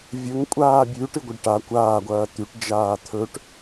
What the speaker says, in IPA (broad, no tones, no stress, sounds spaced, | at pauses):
vʲ ɵ ŋ kʷʼ aː bʲ ʉ ʈ ɨ ɡʷ ɐ ɖ ʈ a kʷ aː ɡʷ ɐː t̪ ʉ ʈ d͡ʒ aː t̪ʰ ɵ ʈ